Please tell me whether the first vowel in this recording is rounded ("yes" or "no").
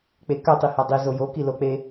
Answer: no